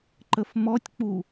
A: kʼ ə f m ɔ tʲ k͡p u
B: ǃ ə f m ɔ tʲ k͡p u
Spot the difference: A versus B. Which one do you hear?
B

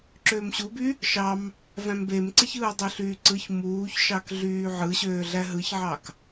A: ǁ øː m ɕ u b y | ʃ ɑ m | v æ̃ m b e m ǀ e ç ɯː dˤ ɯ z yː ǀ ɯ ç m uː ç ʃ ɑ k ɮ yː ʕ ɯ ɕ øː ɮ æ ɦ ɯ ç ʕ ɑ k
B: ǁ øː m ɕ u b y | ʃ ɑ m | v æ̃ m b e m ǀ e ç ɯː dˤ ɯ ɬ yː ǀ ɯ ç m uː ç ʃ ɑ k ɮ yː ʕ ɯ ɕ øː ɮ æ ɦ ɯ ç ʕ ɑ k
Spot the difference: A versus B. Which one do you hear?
B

